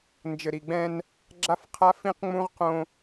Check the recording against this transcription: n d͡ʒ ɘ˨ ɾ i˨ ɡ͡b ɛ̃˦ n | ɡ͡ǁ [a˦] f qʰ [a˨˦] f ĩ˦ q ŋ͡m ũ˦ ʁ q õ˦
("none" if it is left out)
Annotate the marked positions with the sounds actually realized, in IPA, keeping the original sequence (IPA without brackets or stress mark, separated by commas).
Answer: a˦, a˦